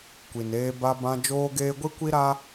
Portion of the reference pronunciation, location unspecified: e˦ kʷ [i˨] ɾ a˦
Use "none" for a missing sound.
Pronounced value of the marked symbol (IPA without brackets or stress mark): i˦